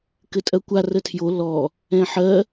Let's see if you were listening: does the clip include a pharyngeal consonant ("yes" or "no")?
yes